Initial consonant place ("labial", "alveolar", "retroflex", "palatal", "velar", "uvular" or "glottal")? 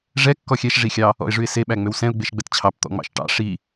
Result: retroflex